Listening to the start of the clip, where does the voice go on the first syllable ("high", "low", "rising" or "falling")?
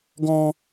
high